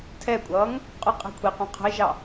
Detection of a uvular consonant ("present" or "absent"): present